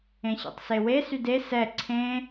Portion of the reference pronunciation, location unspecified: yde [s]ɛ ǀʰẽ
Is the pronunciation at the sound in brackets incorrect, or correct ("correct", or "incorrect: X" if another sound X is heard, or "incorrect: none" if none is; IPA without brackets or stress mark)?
correct